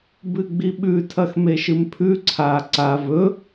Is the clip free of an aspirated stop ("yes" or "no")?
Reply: no